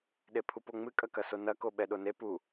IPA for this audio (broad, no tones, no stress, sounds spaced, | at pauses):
ɗ e pʰ u p o ŋ͡m ɨ kʼ ɐ k ɐ s o n ɐ k o ɓ ɛ ɗ o n e p u